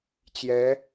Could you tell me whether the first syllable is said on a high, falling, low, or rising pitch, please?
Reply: rising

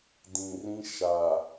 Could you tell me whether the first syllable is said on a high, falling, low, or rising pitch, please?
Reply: low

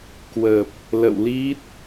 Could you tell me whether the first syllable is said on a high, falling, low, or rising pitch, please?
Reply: low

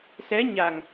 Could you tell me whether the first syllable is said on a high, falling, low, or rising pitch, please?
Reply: rising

